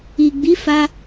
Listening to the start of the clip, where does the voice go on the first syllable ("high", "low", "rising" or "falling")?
low